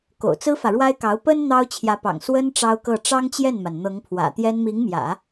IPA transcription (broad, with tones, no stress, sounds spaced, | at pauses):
k o̰˨˩ ʊ̯ t͡s ɹ̩˥ f ä˨ ɻ w a˥ ɪ̯ k ɑ˧˥ ʊ̯ p ə˥ n n̪ ɑ˥ ʊ̯ t͡ɕʰ j ä˧˥ p ɑ̰˨˩ ŋ s w ə˥ n ʈ͡ʂ ɑ˥ ʊ̯ k ɤ˥˩ ʈ͡ʂ ɑ˥ ŋ t͡ɕ j ɛ˥˩ n m a˩ n n̪ ɤ˧˥ ŋ pʰ w ä̰˨˩ t̪ j ɛ˥ n m i˧˥ ŋ m j ä̰˨˩˦